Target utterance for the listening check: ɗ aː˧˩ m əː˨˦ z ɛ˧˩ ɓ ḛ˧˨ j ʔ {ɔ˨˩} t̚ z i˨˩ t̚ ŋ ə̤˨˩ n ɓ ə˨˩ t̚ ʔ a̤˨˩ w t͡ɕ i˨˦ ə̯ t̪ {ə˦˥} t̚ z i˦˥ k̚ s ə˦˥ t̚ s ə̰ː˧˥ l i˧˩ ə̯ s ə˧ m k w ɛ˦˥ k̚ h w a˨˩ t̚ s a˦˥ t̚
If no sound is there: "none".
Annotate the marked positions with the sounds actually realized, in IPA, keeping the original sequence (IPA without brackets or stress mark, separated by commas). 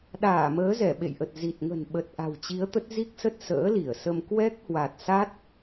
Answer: ə˨˩, ə˦˥